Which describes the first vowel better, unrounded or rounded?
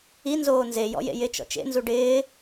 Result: unrounded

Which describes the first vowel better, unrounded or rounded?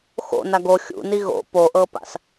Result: rounded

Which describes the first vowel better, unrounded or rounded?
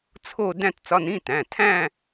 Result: rounded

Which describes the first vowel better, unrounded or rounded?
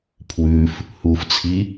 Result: rounded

